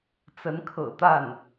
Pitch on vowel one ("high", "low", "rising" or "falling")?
rising